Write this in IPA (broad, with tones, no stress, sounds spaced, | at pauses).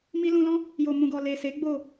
m i˧ l ũ˧ l ɔ̃˦ | j o˨ m ũ˨ ɡ ɔ˨ l e˨ s e˨˦ ɡ͡b o˦˨